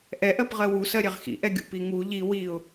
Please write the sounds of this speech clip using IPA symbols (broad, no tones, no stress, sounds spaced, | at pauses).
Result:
ʔ ɛ ʔ ɜ p ʁ ɜ w u s ɜ ɾʲ ɛ ʁ x ḭ ʔ ɛ ɡʲ ṵ p i ŋ u ʎ i w i ʊ̯